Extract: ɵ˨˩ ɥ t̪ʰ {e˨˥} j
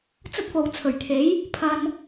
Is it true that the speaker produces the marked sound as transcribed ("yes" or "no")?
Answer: yes